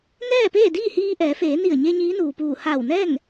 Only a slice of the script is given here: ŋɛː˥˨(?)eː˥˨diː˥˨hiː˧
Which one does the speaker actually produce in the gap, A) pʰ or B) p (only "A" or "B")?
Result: B